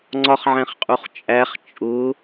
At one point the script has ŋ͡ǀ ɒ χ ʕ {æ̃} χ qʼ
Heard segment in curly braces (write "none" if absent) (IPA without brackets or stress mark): æ̃